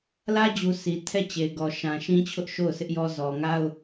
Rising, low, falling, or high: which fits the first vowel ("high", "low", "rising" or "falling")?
high